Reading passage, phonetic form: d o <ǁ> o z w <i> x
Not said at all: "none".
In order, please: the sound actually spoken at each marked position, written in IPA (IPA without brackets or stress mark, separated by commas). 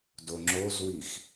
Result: ŋ͡ǁ, i